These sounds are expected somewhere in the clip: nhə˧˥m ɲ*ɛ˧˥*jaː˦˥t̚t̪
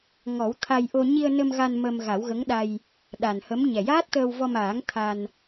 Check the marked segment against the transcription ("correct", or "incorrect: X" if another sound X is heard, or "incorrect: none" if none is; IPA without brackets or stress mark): incorrect: ɛ˨˩